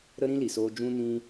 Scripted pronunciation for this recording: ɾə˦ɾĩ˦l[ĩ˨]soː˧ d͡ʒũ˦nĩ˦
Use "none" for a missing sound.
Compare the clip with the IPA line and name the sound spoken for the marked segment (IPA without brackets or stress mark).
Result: i˨